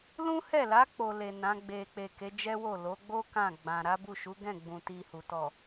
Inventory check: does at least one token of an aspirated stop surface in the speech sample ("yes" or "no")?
no